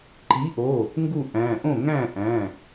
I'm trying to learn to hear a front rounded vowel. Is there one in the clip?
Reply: no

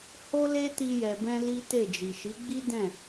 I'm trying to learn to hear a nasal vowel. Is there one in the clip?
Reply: yes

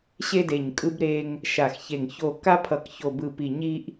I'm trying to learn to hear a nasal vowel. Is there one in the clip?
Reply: no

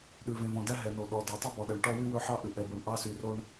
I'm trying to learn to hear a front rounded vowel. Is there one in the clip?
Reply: yes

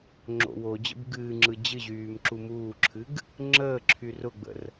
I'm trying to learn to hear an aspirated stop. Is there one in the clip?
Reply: yes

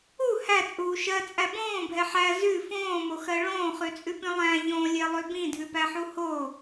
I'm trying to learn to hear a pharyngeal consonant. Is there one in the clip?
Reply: yes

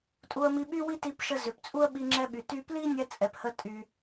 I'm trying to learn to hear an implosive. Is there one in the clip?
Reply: yes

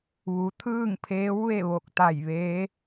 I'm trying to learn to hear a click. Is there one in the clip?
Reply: no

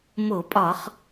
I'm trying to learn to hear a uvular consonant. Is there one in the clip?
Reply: yes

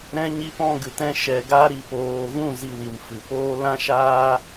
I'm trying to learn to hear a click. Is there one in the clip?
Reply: no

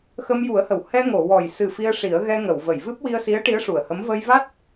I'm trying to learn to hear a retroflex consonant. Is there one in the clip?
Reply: yes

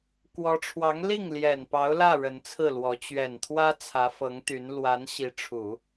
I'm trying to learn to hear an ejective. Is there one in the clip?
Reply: no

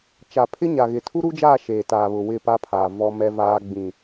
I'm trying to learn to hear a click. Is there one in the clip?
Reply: no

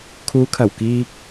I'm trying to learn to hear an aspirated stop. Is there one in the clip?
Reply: yes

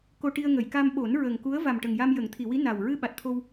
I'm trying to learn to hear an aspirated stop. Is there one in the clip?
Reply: yes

